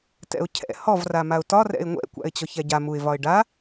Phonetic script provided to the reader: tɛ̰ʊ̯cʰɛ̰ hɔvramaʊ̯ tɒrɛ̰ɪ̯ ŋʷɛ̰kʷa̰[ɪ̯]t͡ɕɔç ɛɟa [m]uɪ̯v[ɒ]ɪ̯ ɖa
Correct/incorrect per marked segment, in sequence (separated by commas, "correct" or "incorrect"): correct, correct, correct